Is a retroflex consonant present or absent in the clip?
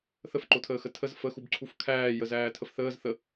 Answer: absent